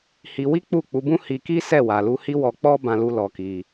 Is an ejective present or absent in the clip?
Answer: absent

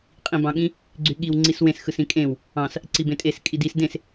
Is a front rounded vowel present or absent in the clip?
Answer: present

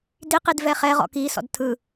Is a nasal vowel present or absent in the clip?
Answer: absent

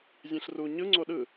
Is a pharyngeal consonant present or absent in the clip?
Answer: absent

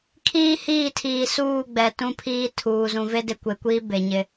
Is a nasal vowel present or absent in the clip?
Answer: present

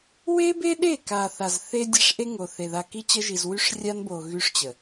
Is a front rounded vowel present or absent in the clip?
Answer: present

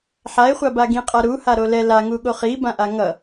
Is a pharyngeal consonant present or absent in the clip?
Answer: present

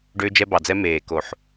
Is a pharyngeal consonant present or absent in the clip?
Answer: present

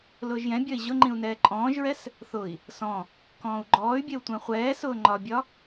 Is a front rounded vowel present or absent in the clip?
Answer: present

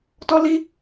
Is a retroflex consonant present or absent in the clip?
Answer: absent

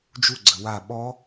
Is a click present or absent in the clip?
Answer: present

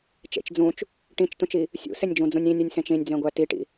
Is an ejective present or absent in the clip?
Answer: absent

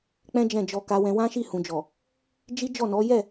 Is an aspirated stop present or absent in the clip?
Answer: absent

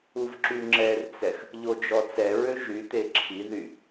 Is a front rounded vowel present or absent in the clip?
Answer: present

